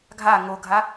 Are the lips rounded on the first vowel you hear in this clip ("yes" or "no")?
no